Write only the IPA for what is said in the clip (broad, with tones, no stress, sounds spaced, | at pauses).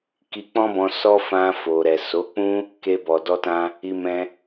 k i˧ k͡p ɔ̃˦ b ɔ̃˧ s ɔ˦ f ã˧ f o˨ ɾ ɛ˨ s o˨˦ k͡p ũ˦ | k e˧ b ɔ˨ d ɔ˧ t ã˧ | i˧ m ɛ̃˧